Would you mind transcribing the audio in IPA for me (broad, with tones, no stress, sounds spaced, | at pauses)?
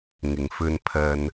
ŋ ɪ˨ ŋ f ɵ˧ n pʰ ɐ˧ n